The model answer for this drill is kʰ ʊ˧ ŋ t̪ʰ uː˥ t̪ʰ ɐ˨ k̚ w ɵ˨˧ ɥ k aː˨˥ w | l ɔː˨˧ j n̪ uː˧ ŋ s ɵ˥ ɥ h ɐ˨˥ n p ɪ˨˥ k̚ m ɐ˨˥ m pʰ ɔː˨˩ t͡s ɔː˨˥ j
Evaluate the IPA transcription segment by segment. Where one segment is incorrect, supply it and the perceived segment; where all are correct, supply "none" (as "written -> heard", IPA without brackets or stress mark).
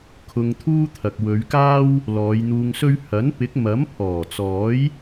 aː˨˥ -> aː˥